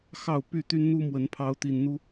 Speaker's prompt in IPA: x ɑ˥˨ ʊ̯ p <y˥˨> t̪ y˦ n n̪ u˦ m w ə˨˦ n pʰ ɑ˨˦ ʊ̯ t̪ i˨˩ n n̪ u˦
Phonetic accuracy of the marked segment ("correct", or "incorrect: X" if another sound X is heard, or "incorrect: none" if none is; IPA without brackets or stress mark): correct